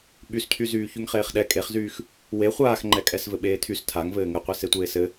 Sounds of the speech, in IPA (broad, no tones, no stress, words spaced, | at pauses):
ɓyscʰyzyːçyŋ χeːχɗɛ kʼeχzyːx | we χʷaːxŋ͡ǃɛ kʼɛsvɘɓeːtʰys tʰaŋvɘː ŋɘqʷe setʷeːsɘ